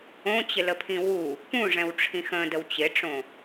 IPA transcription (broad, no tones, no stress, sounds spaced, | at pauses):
õ t͡ɕ ɪ l ə pʰ ĩ w u | p ũ ʐ ɛ̃ w ʈ͡ʂʰ ĩ x ə̃ d ə w t͡ɕ ɪ ʈ͡ʂ õ